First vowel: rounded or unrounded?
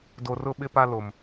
rounded